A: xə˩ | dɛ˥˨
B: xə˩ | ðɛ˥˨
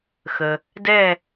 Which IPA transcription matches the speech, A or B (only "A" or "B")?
A